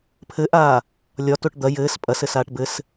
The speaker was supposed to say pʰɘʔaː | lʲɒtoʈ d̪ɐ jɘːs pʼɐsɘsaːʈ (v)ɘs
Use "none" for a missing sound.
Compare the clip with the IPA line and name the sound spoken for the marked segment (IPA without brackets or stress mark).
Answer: b